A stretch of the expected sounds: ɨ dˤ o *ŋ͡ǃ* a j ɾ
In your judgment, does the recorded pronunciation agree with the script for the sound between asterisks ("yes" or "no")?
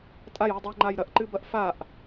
yes